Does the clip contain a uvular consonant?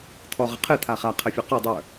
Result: yes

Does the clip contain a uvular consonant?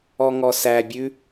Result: no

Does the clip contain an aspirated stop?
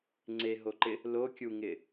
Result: no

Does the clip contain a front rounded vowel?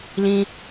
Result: no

